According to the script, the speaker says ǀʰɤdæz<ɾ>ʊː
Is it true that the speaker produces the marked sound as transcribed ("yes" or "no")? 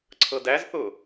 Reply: no